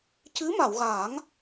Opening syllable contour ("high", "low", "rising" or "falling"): rising